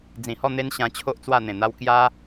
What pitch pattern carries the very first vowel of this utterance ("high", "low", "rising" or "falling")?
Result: low